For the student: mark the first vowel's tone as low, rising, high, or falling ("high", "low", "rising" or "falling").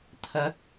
rising